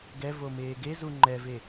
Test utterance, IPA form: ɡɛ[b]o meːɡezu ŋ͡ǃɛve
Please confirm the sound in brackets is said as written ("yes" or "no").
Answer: no